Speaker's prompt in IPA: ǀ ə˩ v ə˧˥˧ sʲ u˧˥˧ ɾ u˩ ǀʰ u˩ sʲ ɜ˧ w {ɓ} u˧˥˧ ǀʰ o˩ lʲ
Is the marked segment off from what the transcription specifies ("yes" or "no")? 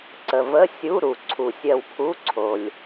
yes